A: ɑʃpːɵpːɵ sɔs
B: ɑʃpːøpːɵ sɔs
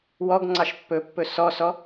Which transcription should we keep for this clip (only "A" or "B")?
A